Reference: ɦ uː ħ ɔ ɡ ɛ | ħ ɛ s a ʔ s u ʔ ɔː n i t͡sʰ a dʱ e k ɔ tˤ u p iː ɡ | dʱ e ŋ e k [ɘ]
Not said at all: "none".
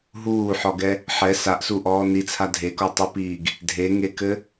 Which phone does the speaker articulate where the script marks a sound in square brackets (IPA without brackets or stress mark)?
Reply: ɘ